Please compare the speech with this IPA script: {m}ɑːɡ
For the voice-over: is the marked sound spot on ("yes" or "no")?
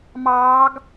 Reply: yes